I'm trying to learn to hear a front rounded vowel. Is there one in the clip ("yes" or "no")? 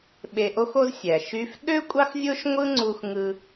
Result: yes